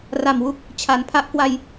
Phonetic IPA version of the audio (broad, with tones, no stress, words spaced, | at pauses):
ra˨˩mwu˦˥k̚ | t͡ɕʰa˩˦npʰa˦˥ʔkwa˧j